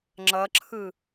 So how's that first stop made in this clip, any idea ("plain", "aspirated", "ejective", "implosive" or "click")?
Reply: click